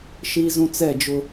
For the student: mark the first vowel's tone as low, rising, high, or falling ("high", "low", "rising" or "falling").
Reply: high